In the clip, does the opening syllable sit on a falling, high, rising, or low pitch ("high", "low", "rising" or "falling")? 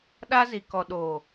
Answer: high